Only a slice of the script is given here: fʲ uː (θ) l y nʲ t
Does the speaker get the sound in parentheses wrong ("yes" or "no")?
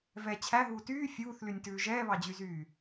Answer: no